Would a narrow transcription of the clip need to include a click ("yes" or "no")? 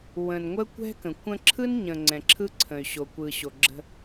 yes